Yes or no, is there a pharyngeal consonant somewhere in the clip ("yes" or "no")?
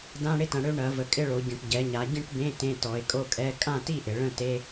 no